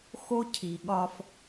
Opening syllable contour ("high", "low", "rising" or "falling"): high